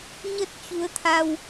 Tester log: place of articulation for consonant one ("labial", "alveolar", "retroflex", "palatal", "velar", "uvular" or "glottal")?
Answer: palatal